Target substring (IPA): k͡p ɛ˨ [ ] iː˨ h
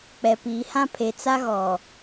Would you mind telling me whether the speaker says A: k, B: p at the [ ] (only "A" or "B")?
B